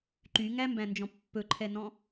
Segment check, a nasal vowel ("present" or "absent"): present